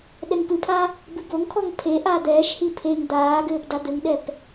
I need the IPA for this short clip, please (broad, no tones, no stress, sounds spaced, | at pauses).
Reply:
ɗ ɛ ŋ p ɨ pʰ a | b ɨ b o ŋ kʰ ɔ ŋ pʰ e ʔ aː d̪ ɛː ʃ h i pʰ e ŋ d̪ aː ɡ ɘː p d a d̪ ɘ ŋ ɗ ɛ p